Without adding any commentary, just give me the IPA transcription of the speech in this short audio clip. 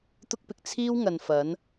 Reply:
t̪ ʊ˥ k̚ p ɪ˨ k̚ t͡sʰ iː˥ w ŋ ɐ˨ n f ɐ˨˥ n

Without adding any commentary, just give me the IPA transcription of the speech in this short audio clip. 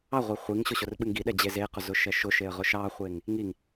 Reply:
ɑ ʁʷ e χʷ i ŋ ɕ ʊ ɕ ʊ r ɓ ɨ ŋ ɡ i ɗ ɛ d͡ʑ e z e q ʊ z ʊ ʃ ɛ ʃ ʊ ʃ e ə̯ ʁ ʊ ʃ ɑ χʷ e ŋ | ŋ i ŋ

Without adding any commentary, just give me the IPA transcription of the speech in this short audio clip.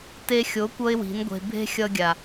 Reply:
t e˧ xʲ o˨˦ kʷ ʌ˦ ɪ̯ w i̤˨˦ n ɡʷ e̤˧ bʱ e̤˦ xʲ ʌ˧ ɡʲ a˨

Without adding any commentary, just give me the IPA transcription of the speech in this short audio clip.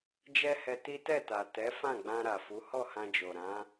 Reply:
d͡ʒ ɛ˦ h ɛ˧ t i˦ t ɛ˦˨ t a˨ t ɛ˨˦ f ã˦˨ ɡ͡b ã˧ ɾ a˨ f u˨˦ h ɔ˦˨ h ã˧ d͡ʒ o˨ ɾ ã˨˦

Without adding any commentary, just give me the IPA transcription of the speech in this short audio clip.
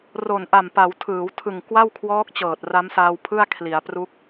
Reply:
r o˨˩ n ʔ a˨˩ m p a˩˦ w tʰ ɯː˩˦ w tʰ ɯ˨˩ ŋ k w a˥˩ w kʰ w ɔː˦˥ k̚ t͡ɕ ɤː˨˩ t̚ r a˦˥ m s aː˧ w pʰ ɯ˥˩ a̯ kʰ l i˩˦ a̯ p r u˦˥ k̚

